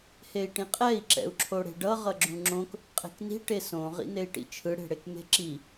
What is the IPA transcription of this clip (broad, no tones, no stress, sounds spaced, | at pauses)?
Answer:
h e i̯ ʈ ĩ qʼ ɛ i̯ ǁ ɛ̰ u̯ ǁʰ o ɽ e̤ ɖ ʌ ʁ ʌ ɡ͡ǁ ũ ŋ͡ǁ õ k | qʼ e̤ k n i̤ ʈ e s õ ʁ ḭ n e i̯ ʈ ḭ t͡ʃʰ ɯ ɽ e̤ ɽ e k m e̤ ǁ i